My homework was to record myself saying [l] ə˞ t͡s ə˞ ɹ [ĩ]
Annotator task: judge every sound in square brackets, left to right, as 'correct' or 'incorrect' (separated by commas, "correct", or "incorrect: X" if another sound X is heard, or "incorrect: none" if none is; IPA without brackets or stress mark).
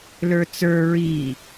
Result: correct, incorrect: i